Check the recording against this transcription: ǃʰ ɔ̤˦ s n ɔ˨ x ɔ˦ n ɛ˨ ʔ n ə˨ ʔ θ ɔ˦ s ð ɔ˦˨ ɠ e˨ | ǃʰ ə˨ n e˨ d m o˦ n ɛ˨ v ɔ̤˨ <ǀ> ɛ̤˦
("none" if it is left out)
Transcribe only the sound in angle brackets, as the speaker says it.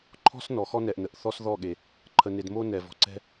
ǀ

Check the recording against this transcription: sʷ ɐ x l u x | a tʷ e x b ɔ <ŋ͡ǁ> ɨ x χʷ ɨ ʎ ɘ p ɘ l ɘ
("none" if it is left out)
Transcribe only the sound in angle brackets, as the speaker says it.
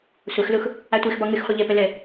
ŋ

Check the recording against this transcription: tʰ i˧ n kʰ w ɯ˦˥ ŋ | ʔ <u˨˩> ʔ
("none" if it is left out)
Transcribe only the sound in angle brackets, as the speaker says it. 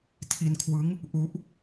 u˦˥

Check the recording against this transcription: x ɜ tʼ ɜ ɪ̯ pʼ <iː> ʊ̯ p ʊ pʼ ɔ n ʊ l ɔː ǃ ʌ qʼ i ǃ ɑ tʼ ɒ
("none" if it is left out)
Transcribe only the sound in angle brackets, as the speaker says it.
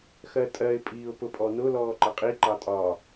iː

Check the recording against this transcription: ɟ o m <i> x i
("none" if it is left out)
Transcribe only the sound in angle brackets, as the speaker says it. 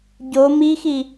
i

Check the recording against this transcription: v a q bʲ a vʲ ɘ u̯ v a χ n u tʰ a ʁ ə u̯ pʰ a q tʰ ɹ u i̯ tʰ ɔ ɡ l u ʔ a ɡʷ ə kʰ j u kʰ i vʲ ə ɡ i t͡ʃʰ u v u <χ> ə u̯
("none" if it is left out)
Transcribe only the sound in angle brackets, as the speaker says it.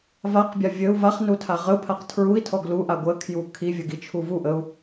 ʔ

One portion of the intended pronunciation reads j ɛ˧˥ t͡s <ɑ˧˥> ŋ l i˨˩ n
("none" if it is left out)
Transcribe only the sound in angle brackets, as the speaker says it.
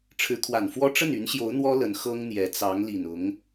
ɑ˧˥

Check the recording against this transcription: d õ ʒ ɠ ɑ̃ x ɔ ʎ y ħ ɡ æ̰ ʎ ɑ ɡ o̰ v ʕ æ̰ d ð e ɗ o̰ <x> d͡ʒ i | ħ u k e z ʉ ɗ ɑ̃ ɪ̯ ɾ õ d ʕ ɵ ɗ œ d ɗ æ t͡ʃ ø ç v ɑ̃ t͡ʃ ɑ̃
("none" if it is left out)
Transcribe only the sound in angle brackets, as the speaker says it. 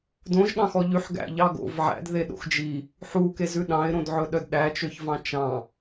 x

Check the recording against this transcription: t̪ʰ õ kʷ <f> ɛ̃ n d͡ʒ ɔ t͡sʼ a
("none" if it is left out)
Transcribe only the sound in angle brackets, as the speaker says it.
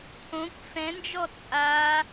f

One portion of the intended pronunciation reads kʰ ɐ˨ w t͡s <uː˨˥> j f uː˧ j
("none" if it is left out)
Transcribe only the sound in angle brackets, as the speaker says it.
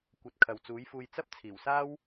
uː˨˥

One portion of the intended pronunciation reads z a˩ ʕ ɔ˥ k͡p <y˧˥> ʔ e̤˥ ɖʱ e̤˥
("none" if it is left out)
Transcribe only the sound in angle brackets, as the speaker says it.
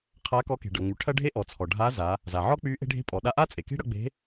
y˧˥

